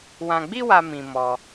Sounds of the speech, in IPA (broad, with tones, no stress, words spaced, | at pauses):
wã˧ɡ͡bi˦wa˧ mĩ˧mɔ˧